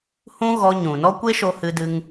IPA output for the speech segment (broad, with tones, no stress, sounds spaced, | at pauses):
h ũ˦ ɣ ɔ˧ ɲ ũ˨ n ɔ˦ kʷ e˦ ʃ o˧ h ɨ˧ d ɨ˧ ŋ